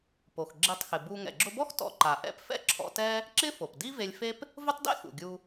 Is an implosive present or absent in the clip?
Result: absent